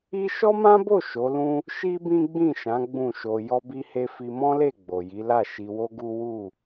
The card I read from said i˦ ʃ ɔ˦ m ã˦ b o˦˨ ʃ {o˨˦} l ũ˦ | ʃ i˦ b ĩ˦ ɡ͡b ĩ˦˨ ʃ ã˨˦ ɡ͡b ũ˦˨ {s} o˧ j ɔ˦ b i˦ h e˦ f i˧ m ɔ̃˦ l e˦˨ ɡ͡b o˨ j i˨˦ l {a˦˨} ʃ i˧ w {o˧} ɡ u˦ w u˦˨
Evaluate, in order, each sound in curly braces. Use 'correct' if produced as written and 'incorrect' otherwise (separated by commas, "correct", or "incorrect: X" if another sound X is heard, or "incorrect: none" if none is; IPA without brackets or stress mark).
correct, incorrect: ʃ, correct, incorrect: o˦